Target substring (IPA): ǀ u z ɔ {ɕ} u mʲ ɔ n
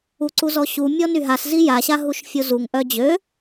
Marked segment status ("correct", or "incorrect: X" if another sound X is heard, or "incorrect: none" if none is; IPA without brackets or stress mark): correct